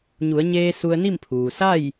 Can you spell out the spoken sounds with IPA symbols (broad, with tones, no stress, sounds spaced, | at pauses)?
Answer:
ɲ u˩˧ ə̯ ɲ eː˧ s u˧ ə̯ n i˥˨ m pʰ uː˩ s a˥˨ j